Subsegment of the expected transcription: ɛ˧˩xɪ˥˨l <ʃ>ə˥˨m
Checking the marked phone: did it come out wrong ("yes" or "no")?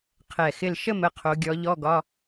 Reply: no